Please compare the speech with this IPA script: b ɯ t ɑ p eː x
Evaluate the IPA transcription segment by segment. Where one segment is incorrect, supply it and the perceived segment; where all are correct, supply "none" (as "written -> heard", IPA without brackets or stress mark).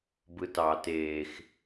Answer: p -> t